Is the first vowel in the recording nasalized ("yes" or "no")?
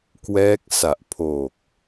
no